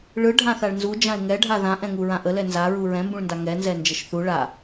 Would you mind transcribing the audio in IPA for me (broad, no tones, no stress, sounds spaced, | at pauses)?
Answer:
ɭ ɯ ɖʱ ã θ a ɭ n z u d͡ʒ ã ɪ̯ ŋ ɛ ɖʱ a ð ã ʔ ɛ̃ ŋ u ɹ ã ʔ ə l ɛ n z a ɹ u ɹ ɛ̃ m b ũ ɭ n d a ŋ ɛ n z ɛ n d͡ʒ ə ʃ θ u ɭ a